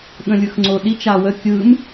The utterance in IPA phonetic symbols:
ɠ ə̃ lʲ ɯ x ŋ͡ǀ o ɗ i t͡ʃ a w ə kʲ ɯ m

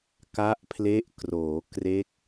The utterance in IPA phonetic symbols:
k a˦˥ ʔ pʰ l e˦˥ ʔ k r oː˩˦ k r e˦˥ k̚

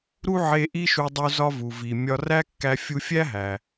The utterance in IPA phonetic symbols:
ɾ u˥ ʕ e˧ ʔ i˥ ʃ u˧ dˤ u˧ z ɒ˧ v u˩ v i˩ mʲ ɒ˧ r æ˥ kː æ˧ fʲ u˧ fʲ æ˥ ɦ æ˩

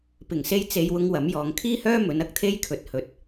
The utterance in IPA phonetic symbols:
p ɪ˨˩ ŋ s e˥ j t͡s e˧ j w ʊ˥ ŋ w ɐ˨˥ m j ɔː˨˧ ŋ kʰ iː˥ h œː˥ m ɵ˨˥ n ɐ˥ k̚ t̪ʰ e˥ j kʰ ɵ˨˥ t̚ h ɵ˧ t̚

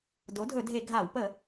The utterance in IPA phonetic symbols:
d o˩˥ dʱ ɵ˧˩˧ dʱ e˧˩˧ ɡʱ a˧˩˧ w p ə˧˩˧

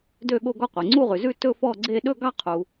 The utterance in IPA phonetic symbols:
d ø˦˨ ɠ o˦˨ ɡ ɔ˦˨ qʷ e˩ ŋ͡ǀ u˦˨ ʁ ʉ˩ z ʉ˦˨ t ɵ˦˨ f ɔ˦˨ ɡ͡ǀ e˦˨ ɗ ɵ˦˨ ɡ ɑ˦˨ qʰ u˩

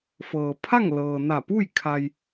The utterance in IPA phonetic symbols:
f ɤː˩ pʰ a˥˨ ŋ l ɤː˩ n a˧˩ p u˥˨ j kʰ a˩ j

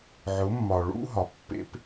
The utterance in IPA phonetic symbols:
ʕ ʊ˨˦ mː ɒ˨ ɭ ṵ˦ ɦ ɒ˨ pː ḛ˦ p

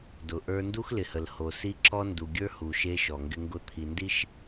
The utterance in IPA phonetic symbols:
d ʊ˨ ʔ ə˞˦ n d u˦ x l ɪ˨ h ə˨ l h o˨ s i˦ ǁ ɔ˦ n d u˨ ɡʲ ə˞˦ h u˨ ʃ e˦ ʃ ɔ˨ ŋ ɡ ɪ˦ ŋ ɡ ʊ˦˨ t̪ʰ i˨ n d i˦ ʃ

